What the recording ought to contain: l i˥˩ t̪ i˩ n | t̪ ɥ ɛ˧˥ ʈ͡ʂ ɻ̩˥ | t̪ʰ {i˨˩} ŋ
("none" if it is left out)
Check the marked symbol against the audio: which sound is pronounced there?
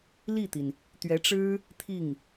i˥˩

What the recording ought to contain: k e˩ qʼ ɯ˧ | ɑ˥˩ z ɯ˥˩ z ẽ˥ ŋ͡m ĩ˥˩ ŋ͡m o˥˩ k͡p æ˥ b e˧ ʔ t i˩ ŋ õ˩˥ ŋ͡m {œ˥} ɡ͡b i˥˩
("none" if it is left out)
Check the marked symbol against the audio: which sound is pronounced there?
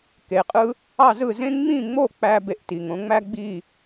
æ˥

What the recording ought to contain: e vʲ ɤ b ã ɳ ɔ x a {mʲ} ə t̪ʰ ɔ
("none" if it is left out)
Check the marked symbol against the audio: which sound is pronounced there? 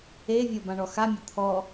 mʲ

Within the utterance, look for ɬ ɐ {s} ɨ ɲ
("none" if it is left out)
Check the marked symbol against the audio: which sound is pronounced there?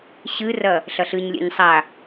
ɬ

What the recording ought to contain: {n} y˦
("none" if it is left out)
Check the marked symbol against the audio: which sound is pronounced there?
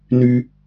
n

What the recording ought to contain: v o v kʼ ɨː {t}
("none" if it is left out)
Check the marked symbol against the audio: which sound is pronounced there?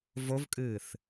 θ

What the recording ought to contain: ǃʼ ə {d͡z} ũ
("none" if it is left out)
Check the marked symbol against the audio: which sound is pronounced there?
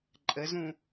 z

